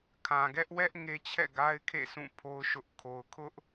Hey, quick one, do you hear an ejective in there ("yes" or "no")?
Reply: no